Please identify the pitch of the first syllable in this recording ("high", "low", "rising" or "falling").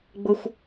high